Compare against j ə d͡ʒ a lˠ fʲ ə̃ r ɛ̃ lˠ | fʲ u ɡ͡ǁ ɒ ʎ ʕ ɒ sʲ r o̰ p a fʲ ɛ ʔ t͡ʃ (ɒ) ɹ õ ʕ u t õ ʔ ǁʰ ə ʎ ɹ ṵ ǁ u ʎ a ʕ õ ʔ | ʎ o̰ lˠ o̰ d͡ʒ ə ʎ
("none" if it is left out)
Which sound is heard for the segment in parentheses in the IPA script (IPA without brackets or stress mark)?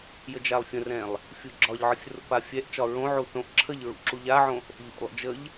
ɒ